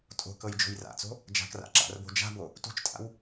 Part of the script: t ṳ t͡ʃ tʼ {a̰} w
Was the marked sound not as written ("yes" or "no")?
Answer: no